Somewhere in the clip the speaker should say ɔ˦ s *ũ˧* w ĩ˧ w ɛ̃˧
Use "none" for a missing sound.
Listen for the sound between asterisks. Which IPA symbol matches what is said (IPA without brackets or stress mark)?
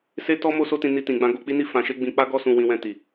ũ˧